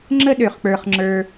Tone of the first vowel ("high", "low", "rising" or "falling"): high